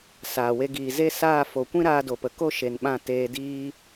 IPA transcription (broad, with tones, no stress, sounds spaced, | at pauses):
s aː˨ w e˧ ɡ iː˨ z e˦ s aː˦˨ f o˨ kʷ ĩ˦ ɾ aː˧ d o˨ p ə˨ k o˦˨ ʃ e˨ n ɓ ã˦˨ t eː˧ d iː˦